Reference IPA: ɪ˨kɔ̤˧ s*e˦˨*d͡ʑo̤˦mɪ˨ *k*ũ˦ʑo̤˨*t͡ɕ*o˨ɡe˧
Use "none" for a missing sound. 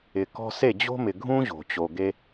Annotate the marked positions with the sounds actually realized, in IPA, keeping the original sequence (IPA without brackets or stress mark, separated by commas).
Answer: e˦˨, ɡʱ, t͡ɕ